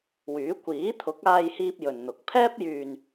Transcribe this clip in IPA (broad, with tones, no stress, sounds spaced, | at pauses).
w yː˨˥ kʷ iː˨˥ t̪ʰ ʊ˨˥ k̚ aː˧ j h iː˧ p̚ j ɵ˨ n n̪ ʊ˨˥ k̚ pʰ ɛː˥ p̚ j yː˨ n